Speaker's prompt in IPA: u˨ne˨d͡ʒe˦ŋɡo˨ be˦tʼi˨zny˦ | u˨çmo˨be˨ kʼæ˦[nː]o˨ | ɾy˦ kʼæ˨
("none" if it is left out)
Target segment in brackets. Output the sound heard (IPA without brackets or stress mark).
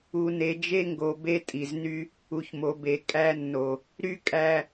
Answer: nː